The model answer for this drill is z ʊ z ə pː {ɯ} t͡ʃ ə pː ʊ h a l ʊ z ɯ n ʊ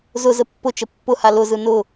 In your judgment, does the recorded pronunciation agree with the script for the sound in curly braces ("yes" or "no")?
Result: no